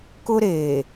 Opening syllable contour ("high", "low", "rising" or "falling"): high